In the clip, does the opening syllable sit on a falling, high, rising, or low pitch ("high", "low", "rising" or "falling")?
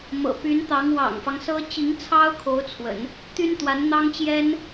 low